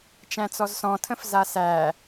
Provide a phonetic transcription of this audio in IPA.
t͡ʃ æ̃ t͡s ɔ z s ɔ̃ tʰ ə̃ f z a s æ

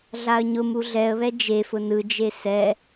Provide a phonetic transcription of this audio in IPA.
ɮ a ə̯ ɲ ʊ m u ɮ ɛ ə̯ β ɛ d͡ʒ e f ʊ n ɯ d͡ʒ e s ɛ

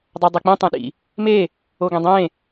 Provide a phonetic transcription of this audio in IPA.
dˤ œ dˤ e k͡p ĩ tˤ ẽ ɗ ḭ | m e | o ɡ ẽ dˤ ẽ

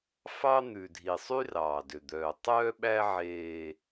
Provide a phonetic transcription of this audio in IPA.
f ɑ˦ n̪ ʉ˨ dʱ i˨ sˤ y˦ r ɑː˨ d ø˨ d̪ œː˨ tˤ œː˦ ɓ æ˦ ʕ eː˦

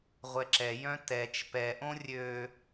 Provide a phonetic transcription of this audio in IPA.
ʁʷ ɛ ǁ ɛ j œ̃ t ɛ t͡ʃ p ɛ ʔ õ rʲ ø

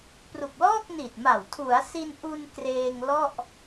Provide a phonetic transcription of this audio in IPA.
p r u˨˩ k̚ l ɔː˥˩ k̚ n i˨˩ t̚ m a˨˩ w tʰ u˩˦ a̯ s i˧ n ʔ u˧ n k r eː˧ ŋ l ɔ˥˩ ʔ

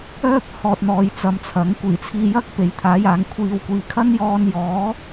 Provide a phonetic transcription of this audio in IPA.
œː˥ p̚ h ɔː˧ t̚ n̪ ɔː˧ j t͡s ɐ˧ m t͡sʰ ɐ˨˥ ŋ kʷ iː˨˩ t͡sʰ iː˧ j ɐ˥ k̚ p e˨˧ j t̪ʰ aː˨˥ j aː˨˧ ŋ kʷʰ iː˨ w kʷ iː˨ kʰ ɐ˥ n j ɔː˧ n j ɔː˨˥

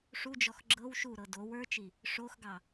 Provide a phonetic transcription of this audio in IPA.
ʂ u d͡ʒ ɔ x ɡ͡ǁ ɤ w ʃ u ɾ ɤ d o w ə˞ t͡ʃ i | ʂ o x ɡ ɑ

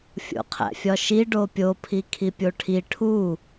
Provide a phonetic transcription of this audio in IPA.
fʲ o̰ qʰ æ̰ fʲ ɒ ʃ i ɖ o pʲ o pʰ i kʰ i pʲ o ʈʰ i ʈʰ u

